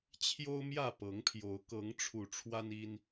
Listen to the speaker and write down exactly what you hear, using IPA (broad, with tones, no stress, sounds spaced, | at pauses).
t͡ɕʰ j o˦ ʊ̯ m j ä˥˨ p ɤ˨˦ ŋ pʰ j o˨˦ ʊ̯ k ɤ˨˦ ŋ ʈ͡ʂʰ u˨˩ ʈ͡ʂʰ w a˦ n i˦ n